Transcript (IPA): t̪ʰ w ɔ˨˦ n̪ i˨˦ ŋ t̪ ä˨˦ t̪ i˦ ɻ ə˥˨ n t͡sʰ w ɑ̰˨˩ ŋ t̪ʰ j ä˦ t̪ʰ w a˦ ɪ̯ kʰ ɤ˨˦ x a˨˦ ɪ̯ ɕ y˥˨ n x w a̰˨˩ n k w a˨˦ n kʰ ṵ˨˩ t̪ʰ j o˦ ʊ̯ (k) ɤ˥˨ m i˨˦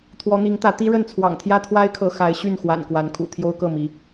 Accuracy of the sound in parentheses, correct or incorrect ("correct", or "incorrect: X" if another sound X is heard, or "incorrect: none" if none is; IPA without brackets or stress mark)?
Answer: correct